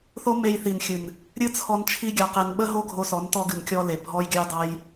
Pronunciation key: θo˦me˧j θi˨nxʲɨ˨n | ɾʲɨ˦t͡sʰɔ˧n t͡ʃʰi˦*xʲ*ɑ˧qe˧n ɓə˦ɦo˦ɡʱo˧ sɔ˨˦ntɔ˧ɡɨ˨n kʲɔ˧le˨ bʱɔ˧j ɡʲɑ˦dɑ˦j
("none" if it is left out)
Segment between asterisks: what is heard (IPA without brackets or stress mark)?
ɡʲ